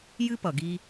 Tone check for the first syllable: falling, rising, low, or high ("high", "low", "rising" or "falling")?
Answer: high